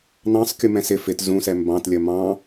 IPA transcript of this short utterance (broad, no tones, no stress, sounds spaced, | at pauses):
n ɑ̃ sˤ kʲ u m ɛ̃ s ɪ f ɪ t z ũ s ɛ m b ɑ̃ t lʲ ə m ɑ̃